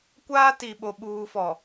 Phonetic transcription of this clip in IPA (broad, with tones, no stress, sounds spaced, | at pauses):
kʷ aː˦ t i˨ ɓ o˨ ɓ uː˨ f ɔ˨